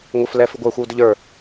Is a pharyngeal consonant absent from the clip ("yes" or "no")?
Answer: yes